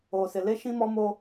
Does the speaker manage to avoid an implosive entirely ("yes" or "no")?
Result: yes